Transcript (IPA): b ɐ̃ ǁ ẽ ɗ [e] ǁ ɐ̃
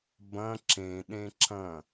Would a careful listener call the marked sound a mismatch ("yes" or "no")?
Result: yes